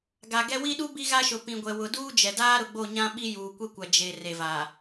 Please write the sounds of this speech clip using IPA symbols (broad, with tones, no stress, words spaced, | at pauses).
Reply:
ɡa˨ɡɛ˦ wi˦ɗu˦ bi˦ɣa˦ʃʊ˨ pĩ˨ɡʷɛ˨ wʊ˨ duː˦d͡ʒɛ˨daː˦ ɾʊ˨ɡ͡bo˦˨ɲã˦ɓi˦ juː˨kʷe˦kʷa˨ d͡ʒe˨ re˨vaː˨